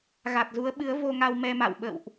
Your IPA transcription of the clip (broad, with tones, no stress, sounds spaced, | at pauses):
ɣ a˨˩ t̚ z u˨˦ ə̯ ɓ ɨ˨˦ ə̯ v o˧ ŋ a˧ w m ɛ˧ m a̰˧˨ w ɓ ə̰˧˨ w ʔ